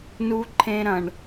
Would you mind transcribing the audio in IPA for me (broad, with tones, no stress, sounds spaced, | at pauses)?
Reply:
n u˧ ǃʰ ẽ˧ ɾ ɐ̃˨ ɳ